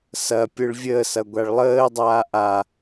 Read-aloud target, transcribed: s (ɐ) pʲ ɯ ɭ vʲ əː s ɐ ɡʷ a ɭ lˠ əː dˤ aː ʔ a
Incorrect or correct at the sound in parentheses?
correct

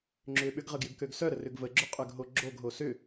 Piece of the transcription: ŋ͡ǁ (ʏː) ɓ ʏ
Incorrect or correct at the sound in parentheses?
correct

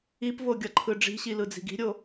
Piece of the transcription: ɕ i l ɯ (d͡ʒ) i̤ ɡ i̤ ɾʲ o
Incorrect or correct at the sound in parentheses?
incorrect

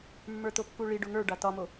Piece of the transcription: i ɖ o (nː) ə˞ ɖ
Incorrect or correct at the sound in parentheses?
incorrect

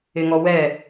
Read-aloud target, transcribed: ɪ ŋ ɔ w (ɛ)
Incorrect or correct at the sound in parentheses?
correct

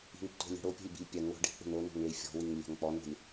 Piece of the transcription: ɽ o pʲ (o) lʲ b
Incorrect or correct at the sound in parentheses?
incorrect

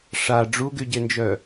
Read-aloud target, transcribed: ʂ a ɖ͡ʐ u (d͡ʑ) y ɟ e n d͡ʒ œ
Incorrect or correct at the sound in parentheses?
incorrect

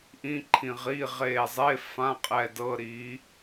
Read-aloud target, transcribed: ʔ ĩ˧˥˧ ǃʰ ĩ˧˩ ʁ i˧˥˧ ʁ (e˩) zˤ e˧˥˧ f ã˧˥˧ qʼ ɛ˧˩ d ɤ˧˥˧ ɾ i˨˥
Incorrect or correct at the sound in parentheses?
incorrect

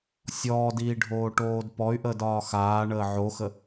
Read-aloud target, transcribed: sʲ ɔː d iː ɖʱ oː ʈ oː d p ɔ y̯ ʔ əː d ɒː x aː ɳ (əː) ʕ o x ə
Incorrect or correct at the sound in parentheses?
correct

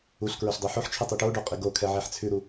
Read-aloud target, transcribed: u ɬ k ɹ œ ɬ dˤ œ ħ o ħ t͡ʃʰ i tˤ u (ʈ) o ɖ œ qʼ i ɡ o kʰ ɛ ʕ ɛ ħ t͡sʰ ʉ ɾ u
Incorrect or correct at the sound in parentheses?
correct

